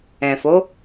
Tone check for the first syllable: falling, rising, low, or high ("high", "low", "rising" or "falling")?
low